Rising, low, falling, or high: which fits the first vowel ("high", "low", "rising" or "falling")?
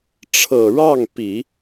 low